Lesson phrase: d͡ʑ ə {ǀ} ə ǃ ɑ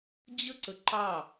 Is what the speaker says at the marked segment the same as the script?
yes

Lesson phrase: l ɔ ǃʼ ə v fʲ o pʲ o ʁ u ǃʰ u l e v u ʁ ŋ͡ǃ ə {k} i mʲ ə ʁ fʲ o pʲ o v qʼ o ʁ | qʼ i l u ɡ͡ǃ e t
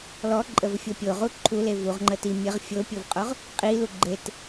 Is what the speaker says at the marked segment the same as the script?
no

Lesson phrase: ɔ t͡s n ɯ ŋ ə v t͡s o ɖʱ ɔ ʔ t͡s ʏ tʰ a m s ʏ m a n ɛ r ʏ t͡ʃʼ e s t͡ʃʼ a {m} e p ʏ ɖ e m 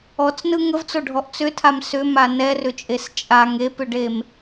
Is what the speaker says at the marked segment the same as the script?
no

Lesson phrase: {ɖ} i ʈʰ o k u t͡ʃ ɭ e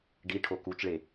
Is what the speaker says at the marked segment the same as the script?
yes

